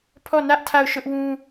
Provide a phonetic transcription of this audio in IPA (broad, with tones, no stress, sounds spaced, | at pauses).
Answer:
pʰ ɔ˦˨ n ä˦ ʔ tʰ a˦˨ ʊ̯ ʃ ʊ˦ ʔ w ũ˦